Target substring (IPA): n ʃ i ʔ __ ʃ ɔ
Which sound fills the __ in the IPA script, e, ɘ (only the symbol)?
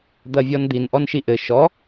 ɘ